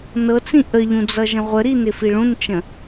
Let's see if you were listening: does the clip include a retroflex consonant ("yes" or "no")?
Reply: yes